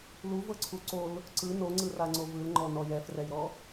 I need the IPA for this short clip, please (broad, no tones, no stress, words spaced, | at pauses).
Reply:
luvɤǀʰu ǀol | ǀɯ noŋ͡ǀɯraŋ͡ǀo vɯlŋ͡ǃɔnɔj ɛfrɛjɾɔ